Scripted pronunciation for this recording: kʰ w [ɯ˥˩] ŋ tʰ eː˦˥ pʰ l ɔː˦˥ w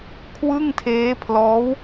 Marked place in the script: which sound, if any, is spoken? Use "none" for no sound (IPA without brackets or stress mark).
ɯ˥˩